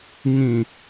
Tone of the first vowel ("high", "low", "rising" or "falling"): low